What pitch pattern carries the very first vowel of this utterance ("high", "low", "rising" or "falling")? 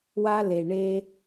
high